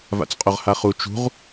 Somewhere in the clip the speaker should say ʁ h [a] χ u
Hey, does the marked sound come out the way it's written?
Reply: yes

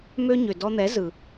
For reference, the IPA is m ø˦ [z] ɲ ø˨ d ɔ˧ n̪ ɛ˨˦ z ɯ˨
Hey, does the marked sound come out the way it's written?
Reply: no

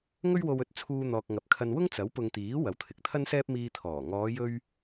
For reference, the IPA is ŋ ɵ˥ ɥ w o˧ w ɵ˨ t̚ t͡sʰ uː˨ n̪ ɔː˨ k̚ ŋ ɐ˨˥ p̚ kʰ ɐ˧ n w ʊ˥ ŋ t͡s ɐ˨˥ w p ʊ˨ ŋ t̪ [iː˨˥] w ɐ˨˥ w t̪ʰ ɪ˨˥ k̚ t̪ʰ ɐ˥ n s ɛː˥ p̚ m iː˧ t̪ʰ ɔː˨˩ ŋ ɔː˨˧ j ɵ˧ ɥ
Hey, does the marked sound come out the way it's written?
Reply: yes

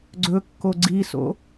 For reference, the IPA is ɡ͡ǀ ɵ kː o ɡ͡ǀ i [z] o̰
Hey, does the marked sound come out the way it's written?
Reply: no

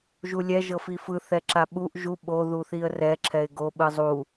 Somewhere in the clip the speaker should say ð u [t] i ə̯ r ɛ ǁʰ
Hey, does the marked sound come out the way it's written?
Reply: no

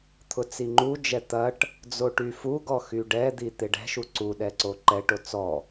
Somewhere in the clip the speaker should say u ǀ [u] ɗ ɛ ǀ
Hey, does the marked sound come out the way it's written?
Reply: yes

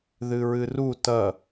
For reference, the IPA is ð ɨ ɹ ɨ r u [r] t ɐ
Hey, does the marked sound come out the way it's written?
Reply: no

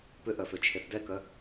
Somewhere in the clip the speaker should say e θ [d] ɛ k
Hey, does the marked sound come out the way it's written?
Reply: yes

